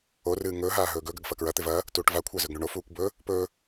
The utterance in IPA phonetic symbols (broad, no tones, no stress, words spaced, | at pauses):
orɨː ŋɵːɦaː ɦɵːɡɵɡɐɡ fɐkɹɐt̪ev ɐ | tuːʈvakʷʰa zɵɡɳuɳofuːkʷ bɵ | pɵ